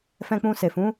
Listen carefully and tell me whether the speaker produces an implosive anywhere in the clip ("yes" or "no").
no